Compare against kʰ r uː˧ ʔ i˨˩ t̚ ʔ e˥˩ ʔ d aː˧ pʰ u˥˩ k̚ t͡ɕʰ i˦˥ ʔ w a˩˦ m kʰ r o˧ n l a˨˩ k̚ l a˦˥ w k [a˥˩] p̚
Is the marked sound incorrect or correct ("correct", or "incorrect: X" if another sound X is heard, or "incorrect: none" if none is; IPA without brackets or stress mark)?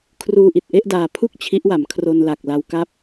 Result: incorrect: a˦˥